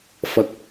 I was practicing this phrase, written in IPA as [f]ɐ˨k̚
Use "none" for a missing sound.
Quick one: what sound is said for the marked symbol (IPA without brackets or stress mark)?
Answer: f